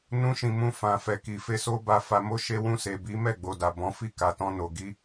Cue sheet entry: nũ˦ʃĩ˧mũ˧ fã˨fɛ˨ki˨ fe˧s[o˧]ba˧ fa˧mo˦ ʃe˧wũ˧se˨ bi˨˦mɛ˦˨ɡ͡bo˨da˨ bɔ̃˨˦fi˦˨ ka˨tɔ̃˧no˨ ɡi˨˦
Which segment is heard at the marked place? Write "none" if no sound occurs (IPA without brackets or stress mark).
o˦